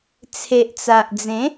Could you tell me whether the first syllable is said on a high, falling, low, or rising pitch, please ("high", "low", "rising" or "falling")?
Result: low